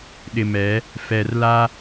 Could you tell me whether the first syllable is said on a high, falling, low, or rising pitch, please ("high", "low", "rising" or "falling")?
low